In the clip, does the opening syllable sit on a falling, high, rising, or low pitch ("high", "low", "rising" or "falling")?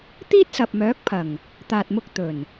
high